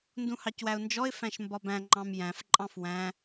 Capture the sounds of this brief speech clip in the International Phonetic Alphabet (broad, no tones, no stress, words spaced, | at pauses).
ndũhɑcwæʊ̯nd͡ʒɔɪ̯ fæ̃ʃmbɒbæ̃ ŋ͡ǃɑ̃mjæ̃f ǃʼɑ̃fwæ̃